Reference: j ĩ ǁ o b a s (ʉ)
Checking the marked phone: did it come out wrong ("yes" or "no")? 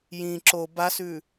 no